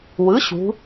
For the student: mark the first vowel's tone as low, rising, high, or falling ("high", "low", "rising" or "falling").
rising